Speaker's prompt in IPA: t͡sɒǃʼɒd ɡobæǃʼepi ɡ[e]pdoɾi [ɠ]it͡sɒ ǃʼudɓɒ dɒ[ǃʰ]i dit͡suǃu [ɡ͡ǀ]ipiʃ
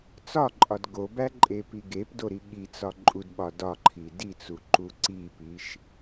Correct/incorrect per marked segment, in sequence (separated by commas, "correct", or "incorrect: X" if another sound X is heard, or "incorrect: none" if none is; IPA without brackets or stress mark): correct, correct, correct, incorrect: ǀ